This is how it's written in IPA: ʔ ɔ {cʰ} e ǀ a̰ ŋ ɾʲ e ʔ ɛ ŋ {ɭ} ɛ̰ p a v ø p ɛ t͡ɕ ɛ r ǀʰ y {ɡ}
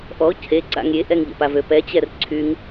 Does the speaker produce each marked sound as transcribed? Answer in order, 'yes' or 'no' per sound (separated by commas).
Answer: yes, no, no